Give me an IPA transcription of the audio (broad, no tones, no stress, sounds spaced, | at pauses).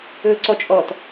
ɵː ǀ ɔ t͡ʃʼ ɔ t